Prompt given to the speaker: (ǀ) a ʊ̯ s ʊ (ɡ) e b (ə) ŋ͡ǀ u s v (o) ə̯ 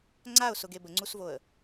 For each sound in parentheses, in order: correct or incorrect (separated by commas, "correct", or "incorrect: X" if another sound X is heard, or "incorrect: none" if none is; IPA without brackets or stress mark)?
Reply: incorrect: ŋ͡ǀ, correct, correct, correct